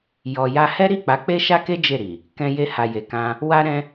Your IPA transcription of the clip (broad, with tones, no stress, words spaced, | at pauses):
jɔ˨ja˧ hɛ˦ɾi˦˨k͡pa˨˦ k͡pe˦ʃa˦ke˦ d͡ʒe˦˨ɾi˨ | kɛ̃˧ je˧ha˨je˨kã˧ | wa˦ɾɛ̃˦